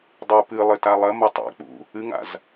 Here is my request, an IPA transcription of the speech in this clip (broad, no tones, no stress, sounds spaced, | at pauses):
dˤ u p ɨ lˠ ɘ t a lˠ ɐ m ɐ tˤ ɛ̰ k͡p ṵ | ɨ ŋ a̰ z